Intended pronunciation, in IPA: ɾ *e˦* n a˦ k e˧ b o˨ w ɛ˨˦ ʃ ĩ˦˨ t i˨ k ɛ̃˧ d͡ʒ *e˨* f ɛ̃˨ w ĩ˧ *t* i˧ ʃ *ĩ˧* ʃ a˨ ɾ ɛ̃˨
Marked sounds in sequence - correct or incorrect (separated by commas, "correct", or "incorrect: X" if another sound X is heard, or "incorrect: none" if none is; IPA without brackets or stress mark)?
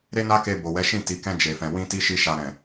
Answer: correct, correct, correct, incorrect: i˧